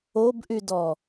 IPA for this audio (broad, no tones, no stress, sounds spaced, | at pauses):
o b ʔ y d ɔ